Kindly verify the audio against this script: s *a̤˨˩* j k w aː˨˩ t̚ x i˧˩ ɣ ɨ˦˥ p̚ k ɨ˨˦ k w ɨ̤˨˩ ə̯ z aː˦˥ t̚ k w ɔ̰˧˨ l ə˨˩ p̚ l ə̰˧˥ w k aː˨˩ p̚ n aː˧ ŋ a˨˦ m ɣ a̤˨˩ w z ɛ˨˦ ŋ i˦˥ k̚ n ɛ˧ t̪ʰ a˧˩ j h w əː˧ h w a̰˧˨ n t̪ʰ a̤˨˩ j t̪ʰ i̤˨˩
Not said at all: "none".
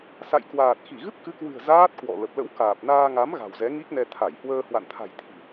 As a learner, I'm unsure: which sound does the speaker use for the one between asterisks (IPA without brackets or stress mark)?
a̰˧˨